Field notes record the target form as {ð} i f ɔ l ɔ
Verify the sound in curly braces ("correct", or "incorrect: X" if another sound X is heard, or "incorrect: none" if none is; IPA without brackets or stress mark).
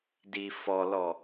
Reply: incorrect: d